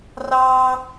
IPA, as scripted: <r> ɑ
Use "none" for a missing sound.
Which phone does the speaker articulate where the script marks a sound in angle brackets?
r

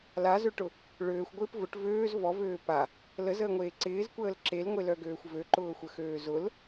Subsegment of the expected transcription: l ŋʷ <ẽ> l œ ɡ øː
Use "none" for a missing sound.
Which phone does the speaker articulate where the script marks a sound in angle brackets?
e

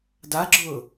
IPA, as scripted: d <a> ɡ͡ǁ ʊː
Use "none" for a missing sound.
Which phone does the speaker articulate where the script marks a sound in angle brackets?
a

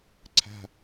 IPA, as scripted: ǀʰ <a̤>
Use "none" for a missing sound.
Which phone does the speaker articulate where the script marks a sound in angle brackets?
a̤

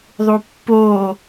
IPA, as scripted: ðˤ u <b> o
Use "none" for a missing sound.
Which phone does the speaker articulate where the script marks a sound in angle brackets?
pː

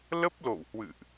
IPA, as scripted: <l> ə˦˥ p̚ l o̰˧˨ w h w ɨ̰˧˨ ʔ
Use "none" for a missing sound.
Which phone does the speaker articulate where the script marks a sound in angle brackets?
l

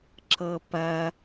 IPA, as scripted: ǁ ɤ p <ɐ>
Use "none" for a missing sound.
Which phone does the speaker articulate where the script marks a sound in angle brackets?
ɐ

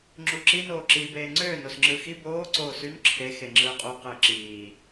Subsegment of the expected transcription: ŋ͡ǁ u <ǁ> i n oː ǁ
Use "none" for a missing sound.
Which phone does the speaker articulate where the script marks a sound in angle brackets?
ǁ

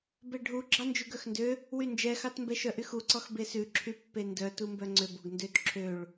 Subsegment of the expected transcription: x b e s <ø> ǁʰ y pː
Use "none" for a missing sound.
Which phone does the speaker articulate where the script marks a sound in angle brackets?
ʉ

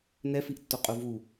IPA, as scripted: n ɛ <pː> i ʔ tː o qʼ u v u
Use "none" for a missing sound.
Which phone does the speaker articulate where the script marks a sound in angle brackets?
f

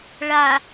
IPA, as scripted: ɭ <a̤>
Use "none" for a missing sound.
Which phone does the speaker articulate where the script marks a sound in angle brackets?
a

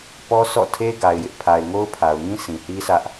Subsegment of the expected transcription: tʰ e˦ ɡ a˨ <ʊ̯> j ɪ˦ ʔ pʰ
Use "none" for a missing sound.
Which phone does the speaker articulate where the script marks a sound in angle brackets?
ɪ̯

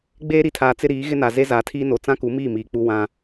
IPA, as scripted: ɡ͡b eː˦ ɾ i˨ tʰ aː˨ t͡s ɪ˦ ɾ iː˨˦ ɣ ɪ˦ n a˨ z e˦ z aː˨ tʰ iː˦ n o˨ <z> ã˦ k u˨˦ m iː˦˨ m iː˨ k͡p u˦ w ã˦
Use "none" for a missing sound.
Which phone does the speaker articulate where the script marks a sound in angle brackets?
t͡s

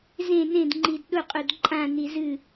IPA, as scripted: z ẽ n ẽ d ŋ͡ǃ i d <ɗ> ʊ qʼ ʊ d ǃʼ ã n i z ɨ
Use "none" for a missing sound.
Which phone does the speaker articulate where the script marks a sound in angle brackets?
ɗ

